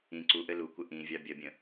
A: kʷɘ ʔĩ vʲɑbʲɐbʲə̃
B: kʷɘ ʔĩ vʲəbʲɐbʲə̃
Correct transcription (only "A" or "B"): A